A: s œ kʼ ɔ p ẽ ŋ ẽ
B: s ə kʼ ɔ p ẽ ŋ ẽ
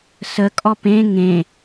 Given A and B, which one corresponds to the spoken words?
B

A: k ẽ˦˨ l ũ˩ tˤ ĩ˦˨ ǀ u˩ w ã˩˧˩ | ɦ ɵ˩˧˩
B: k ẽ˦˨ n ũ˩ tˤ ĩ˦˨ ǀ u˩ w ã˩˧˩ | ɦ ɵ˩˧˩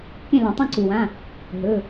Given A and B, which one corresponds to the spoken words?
A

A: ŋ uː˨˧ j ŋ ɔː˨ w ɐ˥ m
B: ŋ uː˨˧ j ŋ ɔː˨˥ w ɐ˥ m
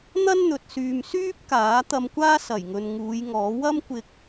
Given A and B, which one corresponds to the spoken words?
B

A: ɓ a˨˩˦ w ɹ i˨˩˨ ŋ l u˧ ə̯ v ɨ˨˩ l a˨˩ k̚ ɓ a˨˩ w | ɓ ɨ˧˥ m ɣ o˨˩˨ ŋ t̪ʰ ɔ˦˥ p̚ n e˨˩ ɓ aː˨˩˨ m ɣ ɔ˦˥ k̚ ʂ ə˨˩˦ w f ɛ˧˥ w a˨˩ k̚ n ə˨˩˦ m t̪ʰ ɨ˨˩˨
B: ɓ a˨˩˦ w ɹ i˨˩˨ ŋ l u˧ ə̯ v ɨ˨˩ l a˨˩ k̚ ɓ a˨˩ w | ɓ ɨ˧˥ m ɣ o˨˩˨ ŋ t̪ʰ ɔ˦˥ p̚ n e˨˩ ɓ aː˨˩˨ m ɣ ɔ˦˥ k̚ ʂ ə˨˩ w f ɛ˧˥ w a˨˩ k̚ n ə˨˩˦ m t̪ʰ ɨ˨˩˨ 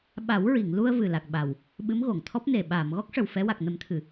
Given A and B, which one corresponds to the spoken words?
B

